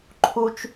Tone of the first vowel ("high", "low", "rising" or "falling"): high